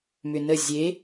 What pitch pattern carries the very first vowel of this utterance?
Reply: low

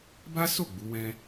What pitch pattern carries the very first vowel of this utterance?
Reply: high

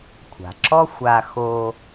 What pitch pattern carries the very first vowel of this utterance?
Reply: low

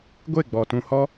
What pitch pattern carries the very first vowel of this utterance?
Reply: falling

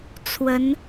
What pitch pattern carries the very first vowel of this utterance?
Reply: rising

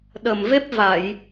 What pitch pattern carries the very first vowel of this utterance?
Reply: low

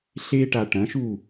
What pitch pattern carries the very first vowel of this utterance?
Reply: high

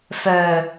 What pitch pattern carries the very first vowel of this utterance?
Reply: low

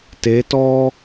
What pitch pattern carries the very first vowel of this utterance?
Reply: rising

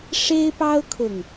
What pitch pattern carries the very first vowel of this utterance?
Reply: high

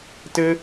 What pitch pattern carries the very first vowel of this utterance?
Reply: high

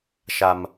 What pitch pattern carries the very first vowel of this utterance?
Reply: high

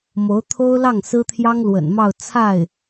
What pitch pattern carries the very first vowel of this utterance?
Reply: rising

